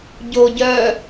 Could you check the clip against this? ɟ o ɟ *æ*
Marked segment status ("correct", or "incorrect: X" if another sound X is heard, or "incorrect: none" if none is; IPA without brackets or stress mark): incorrect: œ